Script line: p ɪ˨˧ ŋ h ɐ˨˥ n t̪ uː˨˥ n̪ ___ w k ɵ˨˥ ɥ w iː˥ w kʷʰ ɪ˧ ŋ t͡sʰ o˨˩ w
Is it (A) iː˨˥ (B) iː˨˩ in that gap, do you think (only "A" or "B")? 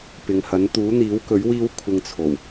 A